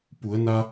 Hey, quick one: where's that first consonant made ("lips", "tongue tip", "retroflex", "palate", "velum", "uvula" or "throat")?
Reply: lips